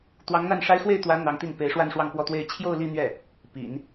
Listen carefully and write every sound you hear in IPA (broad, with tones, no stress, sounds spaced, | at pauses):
t̪ w ɑ˧˥ ŋ n̪ a˥˩ n ʂ a˥ ɪ̯ x w e˥˩ ɪ̯ t̪ w ä˧˥ n̪ ɑ˧˥ ŋ t̪ i˥˩ n p e˧˥ ɪ̯ ʂ w a˥˧ n ʂ w ɑ˥˧ ŋ p w ɔ˥˧ t̪ w e˥˧ ɪ̯ t͡ɕʰ j o˥˧ ʊ̯ l i˥˧ n̪ ɥ ɛ˥˩ | p ḭ˨˩˦ n